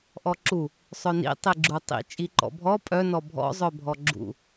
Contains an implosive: no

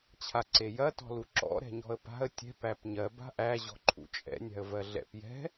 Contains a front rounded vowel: no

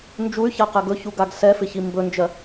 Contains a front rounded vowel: yes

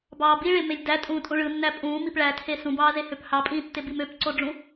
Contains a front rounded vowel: yes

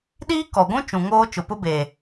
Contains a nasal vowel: yes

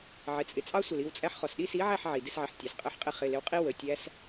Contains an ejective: yes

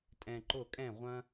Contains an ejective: yes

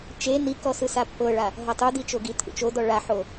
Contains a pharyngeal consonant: yes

